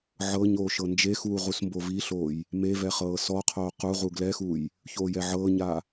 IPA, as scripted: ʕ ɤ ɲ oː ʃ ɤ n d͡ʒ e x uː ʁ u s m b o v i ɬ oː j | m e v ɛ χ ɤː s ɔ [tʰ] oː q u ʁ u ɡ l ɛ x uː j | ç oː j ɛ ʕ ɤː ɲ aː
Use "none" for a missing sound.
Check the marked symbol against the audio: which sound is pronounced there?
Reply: qʰ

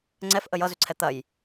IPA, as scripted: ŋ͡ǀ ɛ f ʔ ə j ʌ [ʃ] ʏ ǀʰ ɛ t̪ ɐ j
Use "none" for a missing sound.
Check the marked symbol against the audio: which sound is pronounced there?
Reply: z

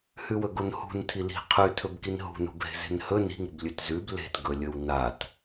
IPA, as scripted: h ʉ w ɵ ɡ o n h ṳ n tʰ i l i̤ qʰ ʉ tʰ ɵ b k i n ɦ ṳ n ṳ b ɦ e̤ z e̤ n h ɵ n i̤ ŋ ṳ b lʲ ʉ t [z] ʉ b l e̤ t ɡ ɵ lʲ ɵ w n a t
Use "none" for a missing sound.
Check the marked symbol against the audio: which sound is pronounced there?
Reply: z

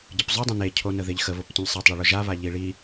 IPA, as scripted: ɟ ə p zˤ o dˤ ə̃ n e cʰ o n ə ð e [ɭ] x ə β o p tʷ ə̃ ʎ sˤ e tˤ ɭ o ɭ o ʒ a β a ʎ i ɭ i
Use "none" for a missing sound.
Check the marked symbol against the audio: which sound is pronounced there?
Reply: ʎ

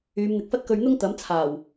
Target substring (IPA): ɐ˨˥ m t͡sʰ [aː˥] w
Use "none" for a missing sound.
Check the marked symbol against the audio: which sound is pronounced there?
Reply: aː˨˩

